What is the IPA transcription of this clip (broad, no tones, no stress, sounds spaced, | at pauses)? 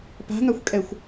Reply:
p a̤ ŋ a xʷ kʼ ɛ xʷ